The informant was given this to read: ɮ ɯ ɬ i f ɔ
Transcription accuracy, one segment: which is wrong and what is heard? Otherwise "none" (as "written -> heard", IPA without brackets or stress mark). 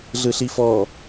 none